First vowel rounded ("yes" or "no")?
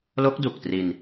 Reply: yes